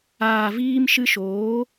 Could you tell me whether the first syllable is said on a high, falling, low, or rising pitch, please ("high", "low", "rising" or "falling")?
low